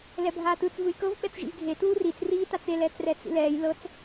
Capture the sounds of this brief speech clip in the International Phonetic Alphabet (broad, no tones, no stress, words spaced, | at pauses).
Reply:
lɛbʱaːtɯt͡s vɯjkɤv ɓɛt͡sʒḭvɡʱe tuːrit͡s riːtat͡se lɛːt͡srɛt͡sḭlɛːj lɤt͡s